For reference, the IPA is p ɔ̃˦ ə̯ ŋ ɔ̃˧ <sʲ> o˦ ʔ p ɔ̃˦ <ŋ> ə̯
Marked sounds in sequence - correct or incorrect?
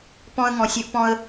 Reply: correct, incorrect

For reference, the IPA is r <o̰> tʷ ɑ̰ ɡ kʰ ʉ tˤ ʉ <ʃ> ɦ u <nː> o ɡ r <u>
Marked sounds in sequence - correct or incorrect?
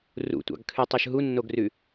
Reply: incorrect, correct, correct, incorrect

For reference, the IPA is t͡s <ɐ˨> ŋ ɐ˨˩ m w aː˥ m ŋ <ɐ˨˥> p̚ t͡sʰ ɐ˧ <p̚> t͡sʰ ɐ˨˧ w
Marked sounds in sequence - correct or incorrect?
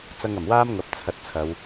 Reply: incorrect, correct, incorrect

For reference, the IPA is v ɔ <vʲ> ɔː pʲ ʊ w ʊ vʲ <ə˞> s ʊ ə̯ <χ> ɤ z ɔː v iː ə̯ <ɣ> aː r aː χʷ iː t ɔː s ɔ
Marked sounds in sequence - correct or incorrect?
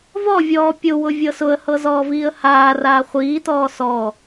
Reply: correct, incorrect, incorrect, incorrect

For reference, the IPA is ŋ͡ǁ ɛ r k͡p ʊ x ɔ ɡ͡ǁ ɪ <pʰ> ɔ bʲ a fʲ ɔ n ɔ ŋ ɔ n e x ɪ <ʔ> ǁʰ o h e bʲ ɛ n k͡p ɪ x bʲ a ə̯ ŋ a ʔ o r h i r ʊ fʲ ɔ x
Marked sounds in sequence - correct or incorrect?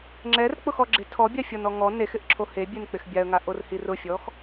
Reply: incorrect, correct

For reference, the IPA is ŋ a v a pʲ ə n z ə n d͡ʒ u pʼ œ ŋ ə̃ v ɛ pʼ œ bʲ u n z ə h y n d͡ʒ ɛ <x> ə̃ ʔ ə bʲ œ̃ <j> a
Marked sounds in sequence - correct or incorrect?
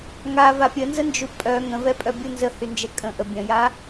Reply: incorrect, correct

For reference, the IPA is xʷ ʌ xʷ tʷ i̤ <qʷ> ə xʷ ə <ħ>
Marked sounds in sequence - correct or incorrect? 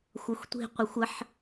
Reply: correct, correct

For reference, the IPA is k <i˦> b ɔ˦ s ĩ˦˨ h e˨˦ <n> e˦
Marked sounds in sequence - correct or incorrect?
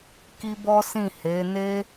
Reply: correct, correct

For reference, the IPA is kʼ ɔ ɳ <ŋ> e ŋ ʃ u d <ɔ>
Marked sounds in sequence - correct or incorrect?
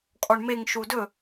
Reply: incorrect, incorrect

